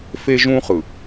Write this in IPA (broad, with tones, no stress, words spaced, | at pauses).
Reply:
fe˦ʒũ˦χɯ˨